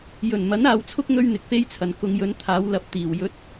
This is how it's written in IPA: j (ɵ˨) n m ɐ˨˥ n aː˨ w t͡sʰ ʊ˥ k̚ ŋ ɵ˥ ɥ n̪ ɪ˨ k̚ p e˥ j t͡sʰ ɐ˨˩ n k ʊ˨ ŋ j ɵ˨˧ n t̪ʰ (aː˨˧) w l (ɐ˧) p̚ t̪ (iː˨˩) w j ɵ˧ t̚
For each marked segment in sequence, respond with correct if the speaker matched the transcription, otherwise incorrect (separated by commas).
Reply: incorrect, correct, correct, correct